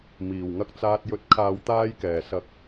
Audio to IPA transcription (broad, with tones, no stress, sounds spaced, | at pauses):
m iː˨˩ w ŋ ɐ˧ k̚ t͡s aː˧ t̚ j ɵ˨ t̚ kʰ aː˨ w t̪ aː˧ j k ɛː˨˩ s ɐ˨ k̚